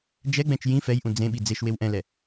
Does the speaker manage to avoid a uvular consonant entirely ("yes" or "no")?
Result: yes